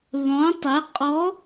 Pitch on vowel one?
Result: rising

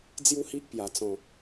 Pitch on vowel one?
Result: high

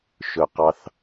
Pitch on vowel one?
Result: low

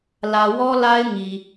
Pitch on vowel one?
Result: low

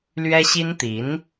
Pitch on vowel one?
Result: high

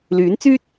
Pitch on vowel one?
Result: rising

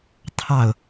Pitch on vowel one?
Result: falling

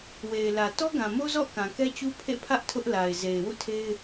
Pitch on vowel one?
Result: low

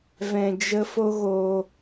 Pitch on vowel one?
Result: low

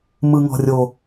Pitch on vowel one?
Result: high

